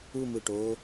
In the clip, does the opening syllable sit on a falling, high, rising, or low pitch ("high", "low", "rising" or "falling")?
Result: falling